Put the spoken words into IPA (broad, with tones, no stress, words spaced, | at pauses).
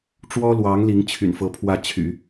ʈ͡ʂwɔ˥lwɑ˧˥ŋ li˧˥ŋt͡ɕʰy̰˨˩nfɤ˧˥ pʰwä˥˩t͡ɕʰy̰˨˩˦